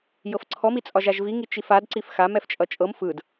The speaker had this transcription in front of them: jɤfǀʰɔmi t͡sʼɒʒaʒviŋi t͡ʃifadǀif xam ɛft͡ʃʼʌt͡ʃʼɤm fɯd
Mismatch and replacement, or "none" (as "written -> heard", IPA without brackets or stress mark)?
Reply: none